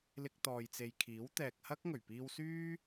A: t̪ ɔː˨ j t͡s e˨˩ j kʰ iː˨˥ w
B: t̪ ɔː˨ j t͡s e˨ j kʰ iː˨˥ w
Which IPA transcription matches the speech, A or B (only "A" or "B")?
B